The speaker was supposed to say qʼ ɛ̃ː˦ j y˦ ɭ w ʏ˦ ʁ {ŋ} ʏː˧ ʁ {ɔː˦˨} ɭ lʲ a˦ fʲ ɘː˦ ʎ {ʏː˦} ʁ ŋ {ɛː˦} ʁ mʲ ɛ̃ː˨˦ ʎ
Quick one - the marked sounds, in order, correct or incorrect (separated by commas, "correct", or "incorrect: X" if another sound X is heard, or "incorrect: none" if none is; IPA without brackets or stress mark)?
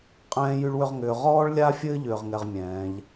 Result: correct, incorrect: ɔː˦, correct, incorrect: ɛ˦